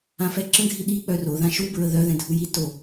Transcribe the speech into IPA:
ã f ɛ ǁ ə̃ ɡʱ i ɗ i k͡p œ r o ð ã ʃ u b ɹ ə ð œ ð ɛ̃ dʱ u j i t o

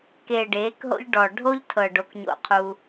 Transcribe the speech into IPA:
k eː˨ ɖ eː˨˦ k ɦ o̰˦ ʎ ɖ ɔ˨ ɖʱ o˦ ʎ tʰ ɤ˨ ɖ o˦ k ɲ o̰˦˨ qʰ u˦

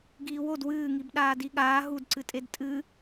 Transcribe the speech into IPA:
ɡ iː w o d w ɨː ŋ i b ɗ aː d i ɠ aː ɦ u d ǀ ɨ tʼ e d tʼ ɨ

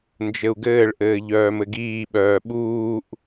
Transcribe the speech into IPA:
n d͡ʒ ɘ u̯ ɡ ɘː ɭ ʔ ɘː ʎ œː m ɘ ɡ iː ɓ œː ɓ uː ʔ

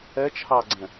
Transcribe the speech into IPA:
ɛ t͡ʃʰ ɑ ɡ͡ǀ ɛ̃

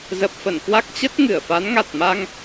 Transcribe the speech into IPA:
z ə˨˩ p̚ f ə˧˩ n k w a˦˥ k̚ t͡ɕ ə˦˥ t̚ ŋ ɨ˧˩ ə̯ f a˨˦ n ŋ a˨˩ t̚ m a˧ ŋ

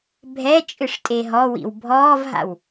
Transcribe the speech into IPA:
bʱ ɛ t͡ʃʼ ɨ ʂ tʼ e ɦ ɔ w ḭ w bʱ ɔː v ɦ a̰ w

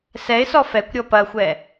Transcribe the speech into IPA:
s ɛ ɪ̯ s ɔ f ɛ kʷ ɾʲ ɔ p ɐ xʷ ɛ

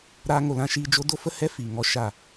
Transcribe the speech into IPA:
ɾ aː˧ ŋ o˨ l ã˧ ʃ iː˧ d͡ʒ o˦ d o˦ f ə˦ h ɛ˦ f iː˨ ŋ ɔ˧ ʃ a˦˨

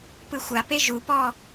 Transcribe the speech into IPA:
p ɯ xʷ a p e ʒ u p ɔ

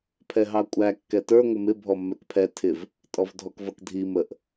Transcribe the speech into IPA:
pʰ ɛ ɦ ɑ kʷʼ æ kː ɛ t ə˞ ŋʷ ɪ m ɪ bʱ ɔ mː ɛ k pʰ ɛ tʰ ɪ v | tʼ ɔ v dʱ ɔ k v ʌ k dʱ i m ə ʔ

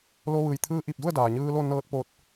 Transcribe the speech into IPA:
l o˧ ʋ ɯː˩ j t̪ʰ ɯː˧ ʔ i˧˩ p̚ d u˥˨ ə̯ d aː˩ ɲ ɯː˧ l o˥˨ n ɤː˧˥ t̚ p oː˧ t̚

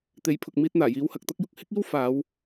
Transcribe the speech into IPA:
t̪ e˨˥ j pʰ ʊ˨ k̚ m iː˧ t̚ n̪ aː˨˩ j iː˨˧ w h ɐ˨ k̚ t̪ ɐ˥ k̚ j ʊ˧ k̚ h ɪ˥ k̚ iː˥ w f aː˨˧ w

